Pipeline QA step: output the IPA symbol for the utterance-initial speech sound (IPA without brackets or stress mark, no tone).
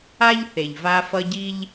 a